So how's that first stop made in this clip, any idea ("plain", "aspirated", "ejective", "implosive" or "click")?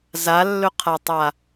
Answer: aspirated